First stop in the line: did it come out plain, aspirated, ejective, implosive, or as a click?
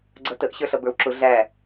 click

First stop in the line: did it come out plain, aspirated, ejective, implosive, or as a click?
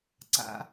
click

